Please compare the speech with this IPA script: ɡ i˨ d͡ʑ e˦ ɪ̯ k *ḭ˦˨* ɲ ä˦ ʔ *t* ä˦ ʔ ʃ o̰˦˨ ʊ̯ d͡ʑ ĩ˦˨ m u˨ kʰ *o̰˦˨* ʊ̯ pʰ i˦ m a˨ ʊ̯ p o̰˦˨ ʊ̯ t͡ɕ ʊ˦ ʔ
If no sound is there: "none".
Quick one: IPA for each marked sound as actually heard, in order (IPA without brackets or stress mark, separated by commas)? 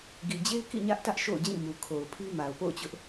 ḭ˦˨, t, o˨